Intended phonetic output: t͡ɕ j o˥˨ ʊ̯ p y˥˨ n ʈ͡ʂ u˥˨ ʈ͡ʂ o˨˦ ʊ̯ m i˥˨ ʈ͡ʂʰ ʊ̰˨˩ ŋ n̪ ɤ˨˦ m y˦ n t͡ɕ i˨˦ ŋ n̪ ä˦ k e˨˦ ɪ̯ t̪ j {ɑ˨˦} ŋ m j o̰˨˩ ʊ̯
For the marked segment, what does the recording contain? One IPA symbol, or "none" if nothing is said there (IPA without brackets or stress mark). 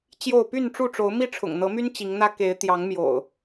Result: ɑ˨˦